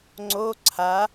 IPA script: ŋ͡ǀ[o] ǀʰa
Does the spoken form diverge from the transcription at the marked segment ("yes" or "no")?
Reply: no